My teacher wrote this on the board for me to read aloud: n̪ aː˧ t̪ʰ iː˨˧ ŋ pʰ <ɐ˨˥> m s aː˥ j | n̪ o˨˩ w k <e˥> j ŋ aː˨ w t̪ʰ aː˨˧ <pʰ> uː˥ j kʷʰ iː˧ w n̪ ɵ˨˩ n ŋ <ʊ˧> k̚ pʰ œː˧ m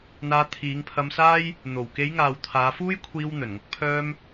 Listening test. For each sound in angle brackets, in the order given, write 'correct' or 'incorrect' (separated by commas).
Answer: incorrect, incorrect, incorrect, correct